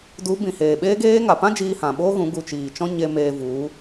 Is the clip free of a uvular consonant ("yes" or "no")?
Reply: yes